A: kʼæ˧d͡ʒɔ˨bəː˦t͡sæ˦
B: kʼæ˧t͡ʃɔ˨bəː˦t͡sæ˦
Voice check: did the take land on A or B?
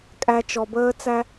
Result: B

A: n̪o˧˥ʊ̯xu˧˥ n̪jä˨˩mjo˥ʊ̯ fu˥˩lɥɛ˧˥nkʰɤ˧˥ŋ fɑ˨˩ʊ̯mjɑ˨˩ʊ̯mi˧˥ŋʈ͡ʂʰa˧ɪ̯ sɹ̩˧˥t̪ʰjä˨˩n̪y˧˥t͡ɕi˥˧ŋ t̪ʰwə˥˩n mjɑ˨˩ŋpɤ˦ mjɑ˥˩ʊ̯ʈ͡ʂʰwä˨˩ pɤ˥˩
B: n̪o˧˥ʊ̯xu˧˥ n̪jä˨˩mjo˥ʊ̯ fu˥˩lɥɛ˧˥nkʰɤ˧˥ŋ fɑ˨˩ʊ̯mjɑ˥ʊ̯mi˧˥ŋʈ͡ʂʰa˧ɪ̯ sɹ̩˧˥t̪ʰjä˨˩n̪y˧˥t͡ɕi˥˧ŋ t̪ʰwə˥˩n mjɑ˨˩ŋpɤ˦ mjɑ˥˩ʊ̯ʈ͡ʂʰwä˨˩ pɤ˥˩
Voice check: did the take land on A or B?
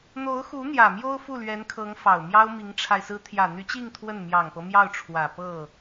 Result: B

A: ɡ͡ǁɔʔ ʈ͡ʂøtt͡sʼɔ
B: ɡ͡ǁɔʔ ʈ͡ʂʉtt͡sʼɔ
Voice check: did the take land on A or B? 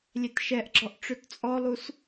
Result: A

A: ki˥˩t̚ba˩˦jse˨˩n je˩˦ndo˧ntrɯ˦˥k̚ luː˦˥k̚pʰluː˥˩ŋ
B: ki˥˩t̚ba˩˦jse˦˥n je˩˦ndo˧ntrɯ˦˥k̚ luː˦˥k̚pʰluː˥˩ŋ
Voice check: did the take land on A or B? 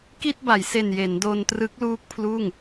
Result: A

